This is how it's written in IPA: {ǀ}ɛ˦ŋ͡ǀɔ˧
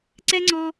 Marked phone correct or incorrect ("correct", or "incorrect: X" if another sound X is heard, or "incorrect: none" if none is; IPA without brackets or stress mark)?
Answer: correct